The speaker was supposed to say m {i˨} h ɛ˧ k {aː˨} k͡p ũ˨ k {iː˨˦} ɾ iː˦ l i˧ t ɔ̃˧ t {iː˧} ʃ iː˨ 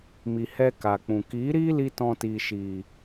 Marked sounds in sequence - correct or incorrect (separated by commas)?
correct, incorrect, correct, incorrect